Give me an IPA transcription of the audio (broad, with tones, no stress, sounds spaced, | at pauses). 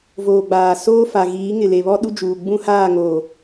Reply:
v oː˨ ɡ͡b aː˨ s oː˦ f a˨ ɣ iː˨˦ ŋ ɪ˨ l e˨ β ɔ˦ ɗ u˦ d͡ʒ uː˨ ɡ͡b ũ˦ h aː˦˨ ŋ oː˨